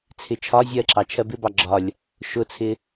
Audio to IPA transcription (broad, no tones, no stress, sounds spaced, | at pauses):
t͡sʰ ɪ t͡ʃʰ ɒ zʲ ɜ ǁ ɑ t͡ʃʰ ɜ b ɪ b ɑ ɡ͡ǁ ɒ lʲ | ʃ ʊ t͡sʰ ɪ